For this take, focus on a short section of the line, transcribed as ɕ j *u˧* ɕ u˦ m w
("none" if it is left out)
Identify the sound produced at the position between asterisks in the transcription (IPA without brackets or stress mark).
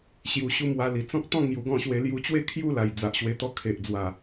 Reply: u˧